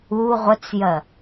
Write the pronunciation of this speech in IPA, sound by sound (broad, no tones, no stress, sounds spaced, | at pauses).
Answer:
u ʁʷ ə t͡s j ɜ